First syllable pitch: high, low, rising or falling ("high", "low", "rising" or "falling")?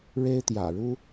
high